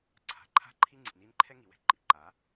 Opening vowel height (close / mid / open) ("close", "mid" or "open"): open